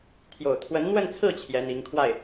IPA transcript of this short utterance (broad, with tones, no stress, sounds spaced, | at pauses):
t̪ʰ j o˨˩ ʊ̯ t̪ʰ w ə˧˥ n n̪ w ə˥˧ n t͡sʰ ɹ̩˥˩ t͡ɕʰ j ɛ˧˥ n̪ i˧˥ ŋ kʰ w a˥˩ ɪ̯